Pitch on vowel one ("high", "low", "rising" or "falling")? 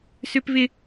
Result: high